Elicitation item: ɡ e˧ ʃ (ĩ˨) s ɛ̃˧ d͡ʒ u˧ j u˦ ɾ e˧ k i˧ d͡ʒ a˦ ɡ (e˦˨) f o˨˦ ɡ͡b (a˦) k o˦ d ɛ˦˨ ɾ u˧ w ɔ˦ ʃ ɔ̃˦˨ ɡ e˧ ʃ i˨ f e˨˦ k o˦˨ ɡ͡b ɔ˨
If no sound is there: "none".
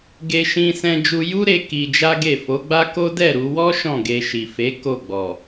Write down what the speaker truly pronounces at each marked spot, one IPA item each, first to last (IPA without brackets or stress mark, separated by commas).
ĩ˧, e˦˨, a˦